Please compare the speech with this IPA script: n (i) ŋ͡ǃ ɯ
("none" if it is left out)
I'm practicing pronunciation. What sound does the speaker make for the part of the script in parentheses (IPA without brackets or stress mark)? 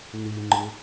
i